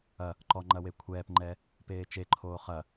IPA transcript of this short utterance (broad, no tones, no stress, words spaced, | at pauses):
ɐ | ǃɔŋ͡ǃɐ wekʷʰɛːpŋ͡ǃɛ | peːt͡ʃeǃʰoː χɐ